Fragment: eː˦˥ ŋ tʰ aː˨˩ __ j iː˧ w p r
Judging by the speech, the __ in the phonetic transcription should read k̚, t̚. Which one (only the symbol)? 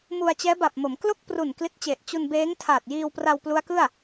t̚